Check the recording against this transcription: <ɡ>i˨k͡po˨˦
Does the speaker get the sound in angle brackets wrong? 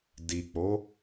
yes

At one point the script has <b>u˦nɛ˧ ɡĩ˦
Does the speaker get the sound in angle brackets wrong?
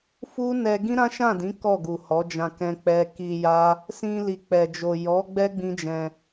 yes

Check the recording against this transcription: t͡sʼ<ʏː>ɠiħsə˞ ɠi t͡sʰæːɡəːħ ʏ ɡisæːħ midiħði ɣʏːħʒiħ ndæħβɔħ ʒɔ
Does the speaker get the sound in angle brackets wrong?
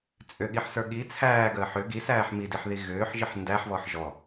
yes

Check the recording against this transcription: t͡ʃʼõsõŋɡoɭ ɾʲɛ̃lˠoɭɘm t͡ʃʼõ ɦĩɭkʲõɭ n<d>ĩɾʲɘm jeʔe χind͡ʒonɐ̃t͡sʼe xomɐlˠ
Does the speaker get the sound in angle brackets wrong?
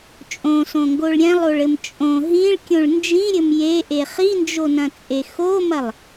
yes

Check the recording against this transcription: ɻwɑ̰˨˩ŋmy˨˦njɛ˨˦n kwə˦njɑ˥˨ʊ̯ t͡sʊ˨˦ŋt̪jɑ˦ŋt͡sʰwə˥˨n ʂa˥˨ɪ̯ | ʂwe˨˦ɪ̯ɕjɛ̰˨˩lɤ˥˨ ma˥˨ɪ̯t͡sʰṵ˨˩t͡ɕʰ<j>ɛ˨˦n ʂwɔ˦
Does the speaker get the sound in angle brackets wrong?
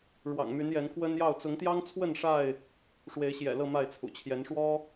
no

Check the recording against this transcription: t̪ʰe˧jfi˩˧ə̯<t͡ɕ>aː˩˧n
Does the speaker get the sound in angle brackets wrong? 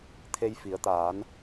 yes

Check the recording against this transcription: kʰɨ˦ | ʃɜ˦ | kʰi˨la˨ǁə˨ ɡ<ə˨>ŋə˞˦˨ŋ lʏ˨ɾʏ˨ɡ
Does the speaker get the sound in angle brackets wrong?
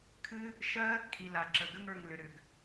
yes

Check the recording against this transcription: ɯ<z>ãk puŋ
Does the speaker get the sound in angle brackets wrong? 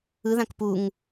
yes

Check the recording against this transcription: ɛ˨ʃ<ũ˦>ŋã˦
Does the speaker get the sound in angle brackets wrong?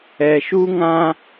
yes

